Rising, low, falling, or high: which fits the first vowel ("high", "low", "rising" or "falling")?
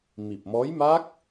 low